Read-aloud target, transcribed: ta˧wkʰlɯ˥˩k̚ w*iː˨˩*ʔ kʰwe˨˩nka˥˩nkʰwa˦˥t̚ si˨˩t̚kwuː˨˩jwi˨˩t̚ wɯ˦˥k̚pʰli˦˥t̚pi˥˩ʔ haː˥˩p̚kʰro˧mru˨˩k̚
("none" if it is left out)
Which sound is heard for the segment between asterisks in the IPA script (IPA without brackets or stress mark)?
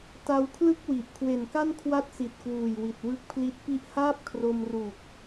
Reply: i˨˩